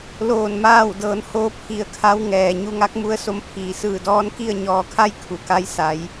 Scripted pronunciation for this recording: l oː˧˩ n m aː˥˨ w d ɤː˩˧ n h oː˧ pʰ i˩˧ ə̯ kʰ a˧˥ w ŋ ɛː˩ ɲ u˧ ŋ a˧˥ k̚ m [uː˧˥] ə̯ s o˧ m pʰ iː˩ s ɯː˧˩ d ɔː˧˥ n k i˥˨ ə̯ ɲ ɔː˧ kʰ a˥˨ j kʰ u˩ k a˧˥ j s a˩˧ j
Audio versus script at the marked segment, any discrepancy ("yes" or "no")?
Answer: yes